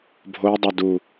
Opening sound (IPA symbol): bʱ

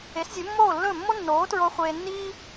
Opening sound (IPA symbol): e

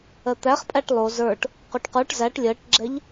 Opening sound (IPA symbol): ɜ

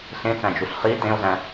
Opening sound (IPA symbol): ɬ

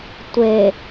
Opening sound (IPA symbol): tʷ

